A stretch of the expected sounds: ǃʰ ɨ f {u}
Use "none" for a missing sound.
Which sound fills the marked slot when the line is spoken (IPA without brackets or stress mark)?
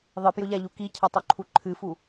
u